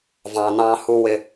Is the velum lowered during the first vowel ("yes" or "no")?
yes